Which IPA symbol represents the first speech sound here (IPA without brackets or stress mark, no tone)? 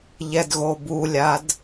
ʎ